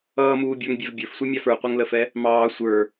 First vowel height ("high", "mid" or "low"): mid